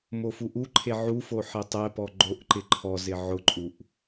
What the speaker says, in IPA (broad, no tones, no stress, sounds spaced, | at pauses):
m o f u ʔ u ǃʰ e ʕ u f o ħ e tˤ ɛ p ɔ ɡ͡ǃ o ʔ ǃ ɪ ǃʰ ɔ z ɪ ʕ ʊ ǃʼ u ʔ